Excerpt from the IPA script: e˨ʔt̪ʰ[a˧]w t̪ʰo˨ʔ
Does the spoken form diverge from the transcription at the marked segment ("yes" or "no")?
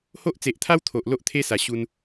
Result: yes